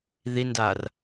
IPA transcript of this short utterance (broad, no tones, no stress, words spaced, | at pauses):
ðindar